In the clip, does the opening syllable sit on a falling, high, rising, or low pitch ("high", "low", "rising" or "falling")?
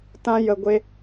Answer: high